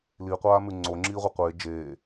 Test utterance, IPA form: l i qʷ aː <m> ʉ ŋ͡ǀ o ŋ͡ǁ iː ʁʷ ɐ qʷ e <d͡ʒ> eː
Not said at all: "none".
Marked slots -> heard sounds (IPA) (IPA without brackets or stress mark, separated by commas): m, d͡ʒ